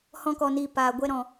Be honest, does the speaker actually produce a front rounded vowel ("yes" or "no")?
no